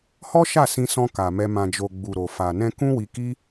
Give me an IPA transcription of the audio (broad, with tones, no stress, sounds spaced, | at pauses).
h ɔ˦ ʃ a˦˨ s ĩ˧ s ɔ̃˧ k a˨ m ɛ˧ m ã˨ d͡ʒ o˨ ɡ͡b u˨ ɾ o˨ f a˨ n ɛ̃˧ k ũ˦ w i˧ k i˦